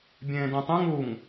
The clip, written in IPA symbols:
bʲ ẽː d ẽ tˤ ẽ ŋ u ŋ

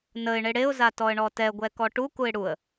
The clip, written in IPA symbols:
n ə ɪ̯ ɳ e ɽ e ʊ̯ z a t ɔ ə̯ ɳ ɔ t ɛ ɡʷ ɛ k ɔ ʈ u k u ɪ̯ ɽ u ə̯

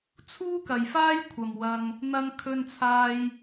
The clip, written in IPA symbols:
t͡sʰ uː˥ k ɐ˨ j f aː˥ j kʷʰ ɐ˨ m w ɐ˧ ŋ | n̪ ɐ˧ ŋ kʰ ɵ˧ n t͡sʰ aː˧ j

